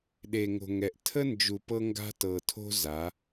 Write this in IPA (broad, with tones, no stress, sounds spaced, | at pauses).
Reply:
ɗ e˨ ŋ o̤˨ ŋ ɛ˨ ʔ tʰ ə˦ n d͡ʒ u˨ p ɤ˦ ŋ ɡ a̤˦ t ɤ˨ tʰ o̤˦ z a˨˦